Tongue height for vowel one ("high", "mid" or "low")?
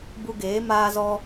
high